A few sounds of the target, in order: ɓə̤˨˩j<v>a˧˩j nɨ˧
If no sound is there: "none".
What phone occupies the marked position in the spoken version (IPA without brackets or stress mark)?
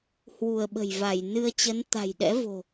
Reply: v